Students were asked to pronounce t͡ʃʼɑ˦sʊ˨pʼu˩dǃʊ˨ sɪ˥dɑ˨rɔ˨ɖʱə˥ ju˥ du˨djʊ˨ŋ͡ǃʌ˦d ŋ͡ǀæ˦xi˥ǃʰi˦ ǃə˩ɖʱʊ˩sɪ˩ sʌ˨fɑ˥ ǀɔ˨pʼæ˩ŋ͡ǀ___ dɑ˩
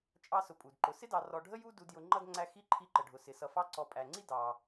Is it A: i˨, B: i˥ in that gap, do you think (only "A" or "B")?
B